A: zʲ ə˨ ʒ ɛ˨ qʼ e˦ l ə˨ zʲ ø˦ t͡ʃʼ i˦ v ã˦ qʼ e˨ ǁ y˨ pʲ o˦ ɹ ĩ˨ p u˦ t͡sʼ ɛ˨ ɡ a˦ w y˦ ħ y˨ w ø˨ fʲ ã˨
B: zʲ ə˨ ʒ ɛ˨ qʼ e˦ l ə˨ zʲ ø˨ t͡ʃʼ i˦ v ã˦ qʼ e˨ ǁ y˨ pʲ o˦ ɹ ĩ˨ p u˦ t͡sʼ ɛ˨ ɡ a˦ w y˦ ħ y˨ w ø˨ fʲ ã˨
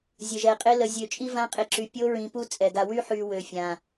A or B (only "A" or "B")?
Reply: B